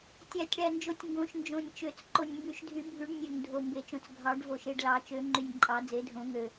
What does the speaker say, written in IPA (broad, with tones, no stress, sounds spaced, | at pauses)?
tʲ æ˨˩˦ tʲ ɽ æ˨˩ n d͡ʒ o˨˩ tʲ ŋ ɡ õ˨˩˦ ʃ n d͡ʒ õ˨˩ nʲ t͡ʃ ø˨˩˦ t͡s ǃ o˨˩ nʲ m b y˨˩˦ ʃ dʱ y˨˩˦ bʱ y˨˩˦ ɖ nʲ ø˨˩ ŋ dʱ o˨˩ m b e˨˩˦ t͡ʃ õ˨˩ t͡s ɡʱ ɑ˨˩˦ ɖ v o˨˩ ʃ e˨˩ ɖ l ɑ˨˩˦ t͡ʃ ø˨˩˦ ŋ͡ǃ y˨˩ nʲ ǃʼ ɑ˨˩˦ d͡z e˨˩˦ dʱ õ˨˩˦ ŋ ø˨˩